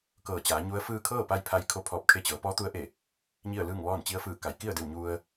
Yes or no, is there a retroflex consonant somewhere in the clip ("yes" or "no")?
no